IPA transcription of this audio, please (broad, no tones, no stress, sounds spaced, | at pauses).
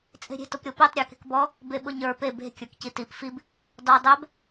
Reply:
t͡sʼ e̤ ɾʲ e̤ t ʊ p ɾʲ o p i tˤ ɾʲ ə˞ k e̤ k b ɔ | b e ɓ ʊ ɲ ə˞ p e b e̤ kʲ ə˞ k c i t i p f i b | d ɔ dˤ ɛ b